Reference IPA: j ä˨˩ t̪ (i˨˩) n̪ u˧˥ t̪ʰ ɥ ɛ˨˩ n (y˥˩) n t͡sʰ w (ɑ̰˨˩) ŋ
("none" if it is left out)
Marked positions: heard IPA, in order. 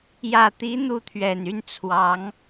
i˧˥, y˥˩, ɑ˧˥

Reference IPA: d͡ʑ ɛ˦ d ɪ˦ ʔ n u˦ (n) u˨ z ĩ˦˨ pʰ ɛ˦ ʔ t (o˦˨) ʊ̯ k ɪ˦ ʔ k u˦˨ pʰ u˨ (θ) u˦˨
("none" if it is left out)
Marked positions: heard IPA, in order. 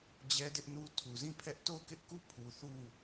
tʰ, o˦˨, θ

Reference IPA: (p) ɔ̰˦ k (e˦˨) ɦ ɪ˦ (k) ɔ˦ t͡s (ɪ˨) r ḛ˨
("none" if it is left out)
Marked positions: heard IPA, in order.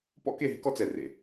p, e˦˨, k, ɛ˨

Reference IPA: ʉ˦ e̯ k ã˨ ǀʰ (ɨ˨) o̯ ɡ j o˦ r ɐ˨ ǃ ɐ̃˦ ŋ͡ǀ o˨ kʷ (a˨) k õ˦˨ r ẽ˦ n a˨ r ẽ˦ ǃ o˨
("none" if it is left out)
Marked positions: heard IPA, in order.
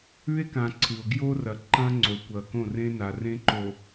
ɨ˨, ɐ˨

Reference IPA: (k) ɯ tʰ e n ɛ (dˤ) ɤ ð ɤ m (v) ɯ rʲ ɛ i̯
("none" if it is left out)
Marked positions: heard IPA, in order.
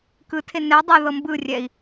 k, dˤ, b

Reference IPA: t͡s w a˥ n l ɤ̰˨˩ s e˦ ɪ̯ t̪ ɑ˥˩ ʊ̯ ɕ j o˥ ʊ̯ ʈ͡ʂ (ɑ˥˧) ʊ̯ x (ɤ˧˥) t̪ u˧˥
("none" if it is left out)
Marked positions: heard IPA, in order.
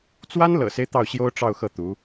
ɑ˥˧, ɤ˥˩

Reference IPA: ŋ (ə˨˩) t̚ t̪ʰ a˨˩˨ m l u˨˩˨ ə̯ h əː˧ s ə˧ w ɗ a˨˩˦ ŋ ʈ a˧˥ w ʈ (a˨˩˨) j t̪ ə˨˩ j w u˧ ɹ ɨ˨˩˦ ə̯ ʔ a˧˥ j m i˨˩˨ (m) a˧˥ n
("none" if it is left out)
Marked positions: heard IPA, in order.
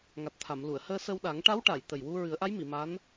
a˨˩, a˨˩˨, m

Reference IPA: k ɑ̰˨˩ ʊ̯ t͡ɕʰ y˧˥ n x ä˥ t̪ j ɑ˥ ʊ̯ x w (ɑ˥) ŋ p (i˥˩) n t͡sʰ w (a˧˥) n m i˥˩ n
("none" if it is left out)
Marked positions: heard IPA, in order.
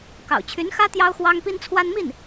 ɑ˥, i˥, a˥

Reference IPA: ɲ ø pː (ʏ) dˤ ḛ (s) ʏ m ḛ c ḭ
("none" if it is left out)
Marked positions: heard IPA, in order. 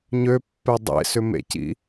ɛ, s

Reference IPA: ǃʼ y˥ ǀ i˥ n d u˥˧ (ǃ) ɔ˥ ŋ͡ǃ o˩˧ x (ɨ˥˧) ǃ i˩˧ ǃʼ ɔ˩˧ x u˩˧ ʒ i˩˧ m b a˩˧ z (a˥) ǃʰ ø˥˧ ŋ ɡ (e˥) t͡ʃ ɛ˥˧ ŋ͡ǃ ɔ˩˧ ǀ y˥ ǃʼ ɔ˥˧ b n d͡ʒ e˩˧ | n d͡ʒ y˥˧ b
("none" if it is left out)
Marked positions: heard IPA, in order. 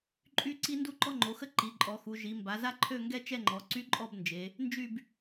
ǃ, ə˥˧, a˥, ɛ˥

